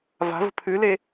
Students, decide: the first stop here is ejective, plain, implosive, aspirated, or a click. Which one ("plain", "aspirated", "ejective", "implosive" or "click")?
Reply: aspirated